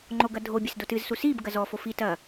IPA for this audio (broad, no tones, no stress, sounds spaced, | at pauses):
ŋ͡ǃ o ɡ ɐ dʱ o bʲ ɨ s d o t ɨ z s u s i b ɡ ɐ z ɔ f o f i t ɐ